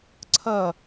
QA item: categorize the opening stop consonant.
click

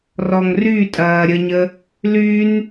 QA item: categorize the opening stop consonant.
ejective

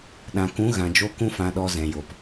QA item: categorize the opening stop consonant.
implosive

